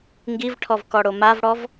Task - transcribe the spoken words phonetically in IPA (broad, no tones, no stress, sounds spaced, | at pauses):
ŋ ɡ i v ʈʰ ɔ v k ɔ ɽ o m a v ɽ ɔ v